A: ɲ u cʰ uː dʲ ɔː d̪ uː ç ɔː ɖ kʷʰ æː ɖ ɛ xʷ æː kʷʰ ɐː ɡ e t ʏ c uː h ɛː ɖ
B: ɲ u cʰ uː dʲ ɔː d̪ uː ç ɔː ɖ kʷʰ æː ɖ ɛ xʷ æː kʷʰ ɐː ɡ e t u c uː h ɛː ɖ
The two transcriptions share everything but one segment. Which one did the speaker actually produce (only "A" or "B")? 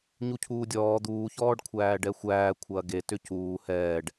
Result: A